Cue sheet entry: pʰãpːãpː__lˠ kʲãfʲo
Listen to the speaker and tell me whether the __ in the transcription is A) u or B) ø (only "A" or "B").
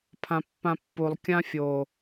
A